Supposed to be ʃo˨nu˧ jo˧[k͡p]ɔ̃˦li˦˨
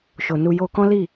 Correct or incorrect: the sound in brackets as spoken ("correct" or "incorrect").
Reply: incorrect